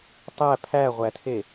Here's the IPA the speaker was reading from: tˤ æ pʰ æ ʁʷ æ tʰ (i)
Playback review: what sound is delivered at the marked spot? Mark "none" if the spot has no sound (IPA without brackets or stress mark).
e